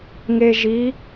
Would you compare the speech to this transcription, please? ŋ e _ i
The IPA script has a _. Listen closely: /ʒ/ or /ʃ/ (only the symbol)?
ʒ